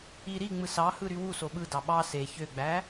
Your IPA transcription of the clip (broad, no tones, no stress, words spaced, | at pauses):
i ɾi ŋ͡mɯsɑhɯ ɾywuso ɓɯdɑ ɓɑ se çøɡ͡bæ